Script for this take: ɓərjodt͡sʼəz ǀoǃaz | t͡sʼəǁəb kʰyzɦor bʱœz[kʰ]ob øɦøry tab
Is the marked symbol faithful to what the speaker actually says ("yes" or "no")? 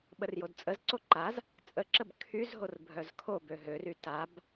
yes